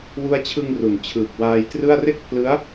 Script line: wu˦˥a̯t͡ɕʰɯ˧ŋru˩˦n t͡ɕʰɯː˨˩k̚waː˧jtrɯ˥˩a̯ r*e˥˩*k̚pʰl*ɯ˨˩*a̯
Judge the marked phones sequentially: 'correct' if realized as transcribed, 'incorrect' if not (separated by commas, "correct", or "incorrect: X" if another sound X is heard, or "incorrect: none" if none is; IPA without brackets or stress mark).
correct, incorrect: ɯ˦˥